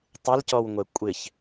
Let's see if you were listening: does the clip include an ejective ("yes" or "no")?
yes